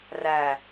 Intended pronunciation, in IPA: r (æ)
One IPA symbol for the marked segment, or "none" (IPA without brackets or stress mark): æ